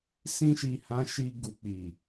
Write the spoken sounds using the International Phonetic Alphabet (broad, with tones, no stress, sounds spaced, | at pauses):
s ĩ˧ ʃ i˨ h ã˨˦ ʃ i˧ ɡ u˨ k͡p i˨